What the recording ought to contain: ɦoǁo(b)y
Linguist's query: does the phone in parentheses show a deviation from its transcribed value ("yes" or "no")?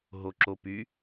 yes